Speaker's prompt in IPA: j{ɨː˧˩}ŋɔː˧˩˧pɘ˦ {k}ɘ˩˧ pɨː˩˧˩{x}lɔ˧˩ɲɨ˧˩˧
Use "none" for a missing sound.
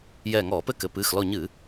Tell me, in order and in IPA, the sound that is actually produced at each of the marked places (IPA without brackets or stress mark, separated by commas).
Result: ɛː˧˩, k, x